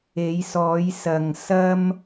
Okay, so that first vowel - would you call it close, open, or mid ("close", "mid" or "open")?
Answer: mid